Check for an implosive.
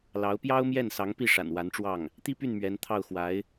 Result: absent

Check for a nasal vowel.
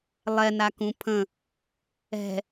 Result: present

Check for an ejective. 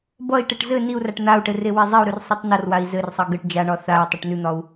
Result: absent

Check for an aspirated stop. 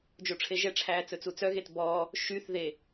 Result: present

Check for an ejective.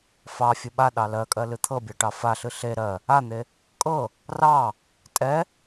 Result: present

